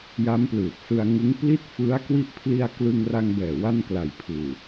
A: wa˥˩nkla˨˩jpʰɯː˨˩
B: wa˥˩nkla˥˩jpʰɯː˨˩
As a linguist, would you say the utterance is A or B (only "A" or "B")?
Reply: A